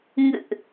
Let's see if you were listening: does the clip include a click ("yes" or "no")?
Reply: no